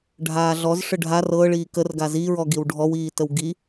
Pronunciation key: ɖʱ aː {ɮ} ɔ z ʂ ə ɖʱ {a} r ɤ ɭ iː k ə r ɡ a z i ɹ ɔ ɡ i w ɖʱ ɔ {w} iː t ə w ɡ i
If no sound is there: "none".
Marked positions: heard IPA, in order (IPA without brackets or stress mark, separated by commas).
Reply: ɮ, a, w